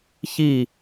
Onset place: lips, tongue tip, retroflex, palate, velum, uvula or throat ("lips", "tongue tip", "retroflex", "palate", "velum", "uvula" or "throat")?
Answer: palate